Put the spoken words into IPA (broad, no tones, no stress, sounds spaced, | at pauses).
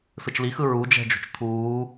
s ɯ t͡ʃ l i x ɯ ɹ u d͡ʒ ɛ̤ d͡ʒ o̤ t͡ʃ tʰ uː